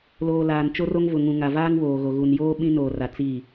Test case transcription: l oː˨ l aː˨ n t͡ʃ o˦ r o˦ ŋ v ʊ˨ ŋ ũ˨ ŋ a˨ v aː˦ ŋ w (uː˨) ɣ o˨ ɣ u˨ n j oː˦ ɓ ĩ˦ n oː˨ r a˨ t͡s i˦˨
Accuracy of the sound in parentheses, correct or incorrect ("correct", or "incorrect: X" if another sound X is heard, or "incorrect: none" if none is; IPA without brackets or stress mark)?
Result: incorrect: oː˨